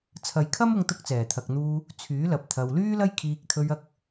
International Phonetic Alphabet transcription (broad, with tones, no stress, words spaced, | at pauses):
t͡sʰɐ˨˧jkʰɐ˥mʊ˧ŋt̪ʊ˧k̚ t͡sɛː˨˩t̪ʰɐ˨k̚n̪uː˧ | t͡sʰyː˨˥lɐ˨p̚ t̪ʰɐ˨wlyː˥lɐ˥j kʰiː˧k̚t̪ʰɵ˧ɥɐ˧k̚